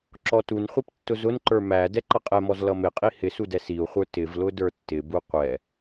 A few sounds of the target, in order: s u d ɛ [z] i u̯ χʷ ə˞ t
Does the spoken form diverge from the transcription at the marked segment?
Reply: yes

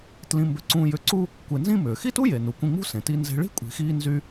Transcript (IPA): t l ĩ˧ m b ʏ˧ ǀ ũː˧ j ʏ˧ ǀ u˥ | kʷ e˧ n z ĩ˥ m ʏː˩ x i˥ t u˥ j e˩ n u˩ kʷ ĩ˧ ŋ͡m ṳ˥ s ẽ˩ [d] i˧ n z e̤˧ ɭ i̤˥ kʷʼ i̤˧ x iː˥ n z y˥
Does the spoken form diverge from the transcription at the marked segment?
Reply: yes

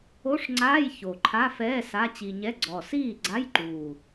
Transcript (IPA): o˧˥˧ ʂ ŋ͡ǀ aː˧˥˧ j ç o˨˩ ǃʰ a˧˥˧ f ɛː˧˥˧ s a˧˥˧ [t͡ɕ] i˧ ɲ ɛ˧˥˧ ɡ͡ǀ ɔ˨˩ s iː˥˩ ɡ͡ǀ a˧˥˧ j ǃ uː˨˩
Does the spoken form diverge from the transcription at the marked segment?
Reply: no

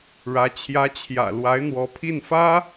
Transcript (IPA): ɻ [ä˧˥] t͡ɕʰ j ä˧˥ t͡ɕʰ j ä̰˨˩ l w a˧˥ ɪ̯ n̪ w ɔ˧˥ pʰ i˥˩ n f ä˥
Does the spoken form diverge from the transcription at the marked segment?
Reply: no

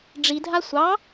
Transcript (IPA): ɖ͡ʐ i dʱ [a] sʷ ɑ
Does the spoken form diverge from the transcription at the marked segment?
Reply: no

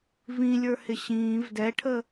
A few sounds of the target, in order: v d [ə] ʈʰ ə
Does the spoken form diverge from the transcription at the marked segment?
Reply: yes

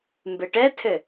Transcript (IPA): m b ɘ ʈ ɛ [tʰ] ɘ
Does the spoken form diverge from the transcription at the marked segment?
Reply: no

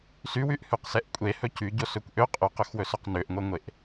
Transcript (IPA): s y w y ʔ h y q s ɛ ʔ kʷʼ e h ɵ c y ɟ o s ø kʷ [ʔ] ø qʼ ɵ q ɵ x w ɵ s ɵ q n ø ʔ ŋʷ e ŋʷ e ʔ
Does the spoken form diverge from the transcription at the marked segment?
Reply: no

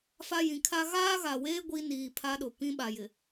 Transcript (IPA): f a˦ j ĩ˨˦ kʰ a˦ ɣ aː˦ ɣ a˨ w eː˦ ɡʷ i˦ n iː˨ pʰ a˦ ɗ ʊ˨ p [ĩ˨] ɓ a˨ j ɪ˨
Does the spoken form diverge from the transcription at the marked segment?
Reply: yes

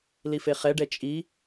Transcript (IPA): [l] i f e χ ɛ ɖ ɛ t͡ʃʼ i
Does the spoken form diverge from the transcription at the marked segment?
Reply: no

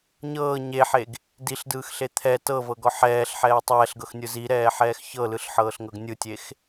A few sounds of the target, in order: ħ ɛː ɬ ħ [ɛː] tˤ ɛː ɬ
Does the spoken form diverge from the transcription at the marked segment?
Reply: no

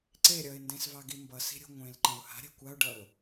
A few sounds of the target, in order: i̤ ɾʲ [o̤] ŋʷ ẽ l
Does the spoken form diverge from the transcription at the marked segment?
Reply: no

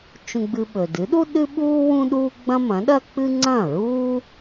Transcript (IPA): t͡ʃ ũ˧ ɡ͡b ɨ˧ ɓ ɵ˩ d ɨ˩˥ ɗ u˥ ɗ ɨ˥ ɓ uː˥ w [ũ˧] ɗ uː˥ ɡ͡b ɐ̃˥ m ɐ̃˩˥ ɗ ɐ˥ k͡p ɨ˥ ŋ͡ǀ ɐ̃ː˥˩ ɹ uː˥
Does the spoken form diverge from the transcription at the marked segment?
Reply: yes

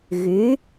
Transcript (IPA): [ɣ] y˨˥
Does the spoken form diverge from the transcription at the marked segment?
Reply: no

